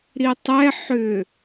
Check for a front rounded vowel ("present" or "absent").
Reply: present